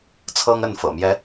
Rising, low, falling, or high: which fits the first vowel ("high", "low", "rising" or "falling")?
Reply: high